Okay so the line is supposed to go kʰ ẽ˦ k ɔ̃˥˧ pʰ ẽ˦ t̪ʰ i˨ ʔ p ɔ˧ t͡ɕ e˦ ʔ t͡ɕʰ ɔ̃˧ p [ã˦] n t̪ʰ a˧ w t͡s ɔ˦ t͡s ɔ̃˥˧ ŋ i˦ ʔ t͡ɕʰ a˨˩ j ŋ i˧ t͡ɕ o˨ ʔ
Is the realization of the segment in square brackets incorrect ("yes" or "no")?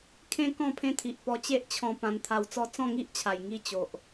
yes